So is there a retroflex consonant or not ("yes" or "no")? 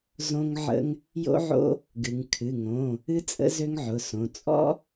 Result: no